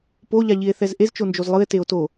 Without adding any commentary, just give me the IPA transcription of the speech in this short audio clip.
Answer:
poʎaʎie̯θɛz ʔezt͡ʃond͡ʒoz lˠɯe̯teo̯ to

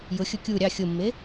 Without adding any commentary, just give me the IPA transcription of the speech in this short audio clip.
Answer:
jʊxʲʊ kʲu ɾʲɑ xʲʊmːe

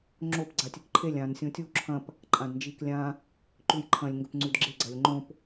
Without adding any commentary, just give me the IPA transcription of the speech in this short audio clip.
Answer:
ŋ͡ǁop ɡ͡ǀatʲɨkǃʰelʲ ãn sʲõtʲu ǁʰɐ̃p | ǃʼãdnd͡ʒiklʲã | ǃʉjǃʰɐ̃lʲ ŋɡɵpŋ͡ǀʉdɡ͡ǁe ɡ͡ǀɐlʲŋ͡ǃõp

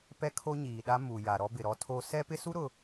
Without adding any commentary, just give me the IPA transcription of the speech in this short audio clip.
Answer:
pɛ˦kʰo˦ɲiː˨ɗa˦ mu˨ ja˨ɾɔ˦ bɪ˨ɾɔ˦ tʰo˦ sɛ˦pɪ˦su˦ ɾʊ˨

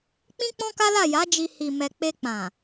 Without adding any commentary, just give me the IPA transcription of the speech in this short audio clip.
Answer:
k͡pĩ˦k͡pɔ̃˦ka˦la˦˨ ja˨˦d͡ʒi˧ hi˨mɛ˨k͡pe˧k͡pã˨

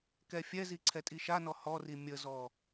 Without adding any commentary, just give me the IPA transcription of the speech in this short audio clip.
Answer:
kɛfʲɛzi ǀʰɛtʼiʃanɔ hɔri mʲəzɔ

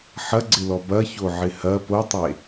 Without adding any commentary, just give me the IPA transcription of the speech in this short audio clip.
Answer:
ħɐɡ͡ǀɪlɔ bɐçoʕɪ hɐ potˤe

